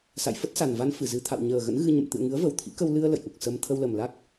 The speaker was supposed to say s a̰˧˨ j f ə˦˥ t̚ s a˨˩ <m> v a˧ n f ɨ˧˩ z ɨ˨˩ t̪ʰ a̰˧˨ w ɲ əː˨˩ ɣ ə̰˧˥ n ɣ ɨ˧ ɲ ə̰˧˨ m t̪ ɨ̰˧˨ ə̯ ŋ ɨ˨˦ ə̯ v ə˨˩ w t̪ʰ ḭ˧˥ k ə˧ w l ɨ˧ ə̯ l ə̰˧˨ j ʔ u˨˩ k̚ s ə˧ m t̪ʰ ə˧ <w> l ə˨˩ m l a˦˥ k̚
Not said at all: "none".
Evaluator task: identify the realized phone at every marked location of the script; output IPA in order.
n, w

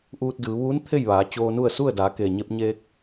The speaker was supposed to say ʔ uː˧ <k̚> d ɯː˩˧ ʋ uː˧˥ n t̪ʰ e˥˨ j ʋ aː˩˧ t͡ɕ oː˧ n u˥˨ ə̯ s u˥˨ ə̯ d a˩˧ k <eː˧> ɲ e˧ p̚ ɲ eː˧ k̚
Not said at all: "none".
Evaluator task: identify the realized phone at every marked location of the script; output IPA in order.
t̚, eː˩

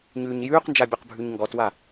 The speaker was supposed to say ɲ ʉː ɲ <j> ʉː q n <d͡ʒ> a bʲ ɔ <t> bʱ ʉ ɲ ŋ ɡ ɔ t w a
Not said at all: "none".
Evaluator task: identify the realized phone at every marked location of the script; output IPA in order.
j, d͡ʒ, q

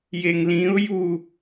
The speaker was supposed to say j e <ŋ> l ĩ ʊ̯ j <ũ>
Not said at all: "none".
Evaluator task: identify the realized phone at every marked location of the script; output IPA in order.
ŋ, u

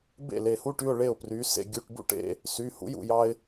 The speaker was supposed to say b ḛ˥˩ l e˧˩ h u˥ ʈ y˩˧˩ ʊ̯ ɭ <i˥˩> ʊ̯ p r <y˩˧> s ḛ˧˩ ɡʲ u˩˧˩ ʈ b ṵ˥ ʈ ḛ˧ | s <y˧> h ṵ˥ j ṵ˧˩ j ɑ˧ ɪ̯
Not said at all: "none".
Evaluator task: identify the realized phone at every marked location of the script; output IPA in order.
e˥˩, y˩˧, y˩˧˩

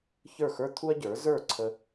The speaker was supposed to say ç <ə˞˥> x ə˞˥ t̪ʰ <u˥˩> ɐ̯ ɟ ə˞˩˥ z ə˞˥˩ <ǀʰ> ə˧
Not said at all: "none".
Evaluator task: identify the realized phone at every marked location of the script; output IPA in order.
ə˞˥˩, u˥, ǀʰ

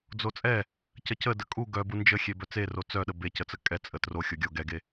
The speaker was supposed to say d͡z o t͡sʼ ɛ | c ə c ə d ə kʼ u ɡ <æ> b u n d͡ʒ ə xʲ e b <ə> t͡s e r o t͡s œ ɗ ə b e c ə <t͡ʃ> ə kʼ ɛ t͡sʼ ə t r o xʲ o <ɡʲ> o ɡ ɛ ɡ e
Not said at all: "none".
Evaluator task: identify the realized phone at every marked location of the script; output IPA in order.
œ, œ, t͡s, ɡʲ

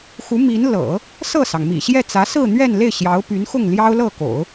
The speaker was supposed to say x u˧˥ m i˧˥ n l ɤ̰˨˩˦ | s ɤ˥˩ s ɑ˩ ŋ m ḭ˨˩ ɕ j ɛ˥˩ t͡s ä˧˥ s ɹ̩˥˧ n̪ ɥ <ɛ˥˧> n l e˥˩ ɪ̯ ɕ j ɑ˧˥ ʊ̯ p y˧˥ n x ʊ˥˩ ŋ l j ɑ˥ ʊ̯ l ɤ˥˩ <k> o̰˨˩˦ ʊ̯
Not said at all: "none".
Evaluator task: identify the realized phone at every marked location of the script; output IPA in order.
ɛ˥˧, k

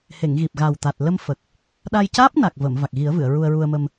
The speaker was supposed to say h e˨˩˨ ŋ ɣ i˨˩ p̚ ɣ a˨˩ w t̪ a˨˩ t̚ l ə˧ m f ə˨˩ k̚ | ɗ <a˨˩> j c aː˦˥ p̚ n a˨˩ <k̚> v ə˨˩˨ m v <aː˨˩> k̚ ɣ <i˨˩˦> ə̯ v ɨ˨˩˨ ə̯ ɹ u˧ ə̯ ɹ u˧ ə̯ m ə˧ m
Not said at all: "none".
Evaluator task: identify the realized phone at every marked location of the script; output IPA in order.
a˧, k̚, a˨˩, i˨˩˦

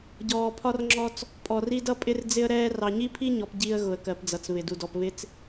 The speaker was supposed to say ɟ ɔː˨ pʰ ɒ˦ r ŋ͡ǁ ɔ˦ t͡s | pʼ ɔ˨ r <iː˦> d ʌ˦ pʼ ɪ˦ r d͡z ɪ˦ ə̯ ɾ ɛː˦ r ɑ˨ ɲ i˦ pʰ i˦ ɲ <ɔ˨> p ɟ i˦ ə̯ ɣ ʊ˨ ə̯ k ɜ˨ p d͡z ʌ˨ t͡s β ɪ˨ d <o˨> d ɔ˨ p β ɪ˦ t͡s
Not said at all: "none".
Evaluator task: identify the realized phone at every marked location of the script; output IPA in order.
i˦, ɔ˨, u˨

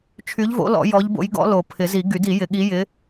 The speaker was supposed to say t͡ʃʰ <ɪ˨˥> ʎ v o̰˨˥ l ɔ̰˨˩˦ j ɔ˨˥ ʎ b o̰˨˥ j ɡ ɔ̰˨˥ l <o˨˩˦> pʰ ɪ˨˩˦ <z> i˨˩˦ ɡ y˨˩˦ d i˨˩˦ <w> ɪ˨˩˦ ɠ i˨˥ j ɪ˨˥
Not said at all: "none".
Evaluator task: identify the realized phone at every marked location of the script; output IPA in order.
y˨˥, o˨˩˦, z, j

